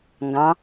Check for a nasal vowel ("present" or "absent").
present